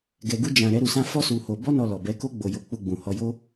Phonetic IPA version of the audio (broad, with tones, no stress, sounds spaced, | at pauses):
ɡ ɛ˧ ɡ u˦ d͡ʒ ã˧ ɾ ɛ˦ ɾ u˧ s ã˦ f ɔ˦ s u˧ h o˧ b ɔ˦ n ɔ˧ l ɔ˨ b ɛ˨˦ k o˦ ɡ͡b o˧ j o˧ k͡p u˧ ɡ͡b ũ˨ h ɔ˧ j o˦